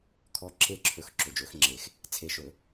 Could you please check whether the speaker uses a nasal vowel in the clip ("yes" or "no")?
no